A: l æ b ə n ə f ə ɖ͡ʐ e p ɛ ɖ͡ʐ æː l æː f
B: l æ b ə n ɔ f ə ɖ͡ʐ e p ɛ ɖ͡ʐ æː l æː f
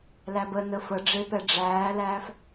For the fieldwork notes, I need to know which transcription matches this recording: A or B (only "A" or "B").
A